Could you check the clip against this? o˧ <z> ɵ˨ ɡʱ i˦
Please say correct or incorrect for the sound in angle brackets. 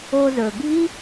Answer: correct